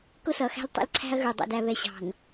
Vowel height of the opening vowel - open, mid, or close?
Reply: close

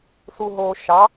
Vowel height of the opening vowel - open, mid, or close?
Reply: close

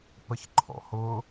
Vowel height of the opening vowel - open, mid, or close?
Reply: mid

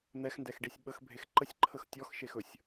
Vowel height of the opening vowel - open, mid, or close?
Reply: mid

